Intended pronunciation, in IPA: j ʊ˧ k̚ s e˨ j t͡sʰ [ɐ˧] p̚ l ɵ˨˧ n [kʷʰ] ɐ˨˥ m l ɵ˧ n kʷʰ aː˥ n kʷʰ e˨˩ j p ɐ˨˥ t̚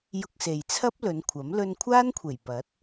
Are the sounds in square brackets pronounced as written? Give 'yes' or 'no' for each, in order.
no, yes

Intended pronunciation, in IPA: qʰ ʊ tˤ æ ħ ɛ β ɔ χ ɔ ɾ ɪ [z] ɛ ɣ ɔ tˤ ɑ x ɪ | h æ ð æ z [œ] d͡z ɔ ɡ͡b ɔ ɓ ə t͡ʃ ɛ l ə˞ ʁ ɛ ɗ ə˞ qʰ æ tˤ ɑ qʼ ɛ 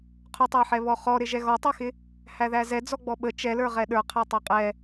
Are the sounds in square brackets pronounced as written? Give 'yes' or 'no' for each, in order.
no, no

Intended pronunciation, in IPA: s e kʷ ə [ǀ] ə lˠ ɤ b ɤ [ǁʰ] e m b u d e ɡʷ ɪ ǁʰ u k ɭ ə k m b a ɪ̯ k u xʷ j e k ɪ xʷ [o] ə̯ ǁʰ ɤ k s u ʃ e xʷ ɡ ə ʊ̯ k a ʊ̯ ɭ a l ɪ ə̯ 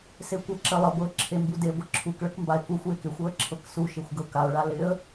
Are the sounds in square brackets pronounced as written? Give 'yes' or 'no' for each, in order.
no, yes, no

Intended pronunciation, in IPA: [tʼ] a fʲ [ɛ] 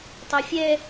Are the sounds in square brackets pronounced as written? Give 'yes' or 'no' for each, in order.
no, yes

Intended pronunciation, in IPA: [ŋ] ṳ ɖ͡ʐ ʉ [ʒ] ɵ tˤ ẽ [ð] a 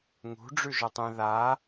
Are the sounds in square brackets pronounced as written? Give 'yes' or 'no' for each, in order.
yes, yes, yes

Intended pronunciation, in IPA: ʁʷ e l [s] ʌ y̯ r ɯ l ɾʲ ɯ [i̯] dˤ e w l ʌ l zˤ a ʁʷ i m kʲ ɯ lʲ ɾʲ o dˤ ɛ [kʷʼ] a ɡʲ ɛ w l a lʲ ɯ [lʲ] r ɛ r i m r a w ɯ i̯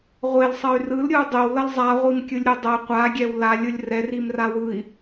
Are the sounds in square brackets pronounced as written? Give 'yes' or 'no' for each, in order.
no, no, no, yes

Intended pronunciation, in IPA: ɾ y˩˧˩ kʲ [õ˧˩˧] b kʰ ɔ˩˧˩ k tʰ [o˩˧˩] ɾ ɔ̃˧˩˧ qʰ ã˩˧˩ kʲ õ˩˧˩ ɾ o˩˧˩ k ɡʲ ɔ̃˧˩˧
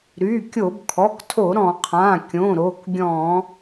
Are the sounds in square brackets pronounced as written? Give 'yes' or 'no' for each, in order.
no, no

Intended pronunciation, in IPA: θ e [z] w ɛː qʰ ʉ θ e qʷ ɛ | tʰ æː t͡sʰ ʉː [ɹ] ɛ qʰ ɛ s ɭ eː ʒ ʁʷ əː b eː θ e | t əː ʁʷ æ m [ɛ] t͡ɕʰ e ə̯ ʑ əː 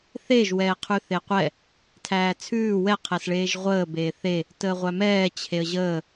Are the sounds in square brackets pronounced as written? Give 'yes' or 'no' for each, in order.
no, no, no

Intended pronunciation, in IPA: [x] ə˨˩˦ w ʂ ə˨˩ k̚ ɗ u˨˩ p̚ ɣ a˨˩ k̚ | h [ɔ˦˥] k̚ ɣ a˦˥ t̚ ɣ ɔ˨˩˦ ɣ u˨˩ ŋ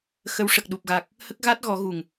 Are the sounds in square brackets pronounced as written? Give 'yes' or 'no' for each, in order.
yes, no

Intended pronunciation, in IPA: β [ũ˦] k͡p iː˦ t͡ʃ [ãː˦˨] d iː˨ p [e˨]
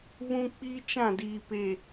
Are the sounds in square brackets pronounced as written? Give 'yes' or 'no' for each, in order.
yes, no, yes

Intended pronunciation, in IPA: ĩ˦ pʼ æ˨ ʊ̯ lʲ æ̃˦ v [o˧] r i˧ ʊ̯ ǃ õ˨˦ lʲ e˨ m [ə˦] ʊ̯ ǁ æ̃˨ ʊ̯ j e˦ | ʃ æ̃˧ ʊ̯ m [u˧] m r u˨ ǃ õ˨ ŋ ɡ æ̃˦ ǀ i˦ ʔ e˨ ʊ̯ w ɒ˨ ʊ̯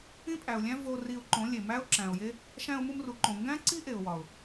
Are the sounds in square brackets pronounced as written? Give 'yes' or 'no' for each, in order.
yes, no, yes

